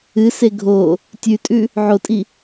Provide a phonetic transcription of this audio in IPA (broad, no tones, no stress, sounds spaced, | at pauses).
ɨ s e ɡʱ o | tʲ ʉ tʼ ʉ | ʕ o tʼ i